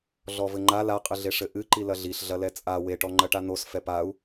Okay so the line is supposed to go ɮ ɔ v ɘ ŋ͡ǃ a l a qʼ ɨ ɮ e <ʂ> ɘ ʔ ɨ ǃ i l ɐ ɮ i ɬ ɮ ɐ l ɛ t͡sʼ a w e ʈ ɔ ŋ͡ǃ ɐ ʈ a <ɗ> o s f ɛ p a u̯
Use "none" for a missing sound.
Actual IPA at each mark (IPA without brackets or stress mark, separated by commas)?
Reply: ʂ, n̪